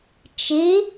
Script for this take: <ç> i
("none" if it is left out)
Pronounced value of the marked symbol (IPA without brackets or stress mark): t͡ʃ